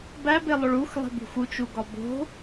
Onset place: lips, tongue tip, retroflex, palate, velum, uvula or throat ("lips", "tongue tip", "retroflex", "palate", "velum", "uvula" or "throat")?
lips